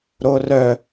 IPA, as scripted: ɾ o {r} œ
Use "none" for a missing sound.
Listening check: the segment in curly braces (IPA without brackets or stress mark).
r